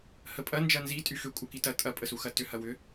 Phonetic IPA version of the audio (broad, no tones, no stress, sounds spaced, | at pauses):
h ə pʼ ɐ n d͡ʒ ɐ n z i tʼ y x ʏ kʷʼ œ k i t ɐ tʼ ɐ pʼ ə s u x ɐ t ʏ h ɐ w ʏ